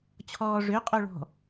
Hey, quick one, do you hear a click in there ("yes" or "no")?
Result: no